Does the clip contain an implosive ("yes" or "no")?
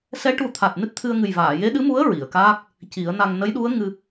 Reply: yes